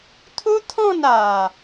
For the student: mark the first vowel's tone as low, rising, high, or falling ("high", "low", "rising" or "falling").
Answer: high